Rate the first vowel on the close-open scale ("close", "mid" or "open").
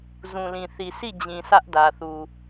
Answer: close